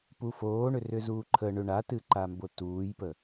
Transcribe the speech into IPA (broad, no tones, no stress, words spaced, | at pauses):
pufoːɳʏ rʏzuːǃʰə ɳʏ ɳatɨǃambo tuːjpə